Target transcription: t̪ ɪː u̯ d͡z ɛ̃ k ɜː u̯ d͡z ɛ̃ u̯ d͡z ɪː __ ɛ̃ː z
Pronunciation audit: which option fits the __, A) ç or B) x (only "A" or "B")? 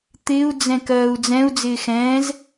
B